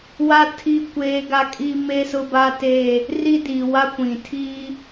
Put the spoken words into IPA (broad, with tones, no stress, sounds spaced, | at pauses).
w a˦ tʰ i˦˨ kʷ eː˦ ɡ a˦ kʼ i˦ m e˦ s ʊ˦ b a˦ t e˦˨ | r i˦ d iː˨ w a˦ kʷ ĩ˨ tʰ iː˦